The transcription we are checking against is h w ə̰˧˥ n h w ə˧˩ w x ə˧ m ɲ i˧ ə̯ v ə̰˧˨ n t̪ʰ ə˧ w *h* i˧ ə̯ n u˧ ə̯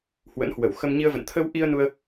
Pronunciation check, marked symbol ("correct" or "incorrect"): incorrect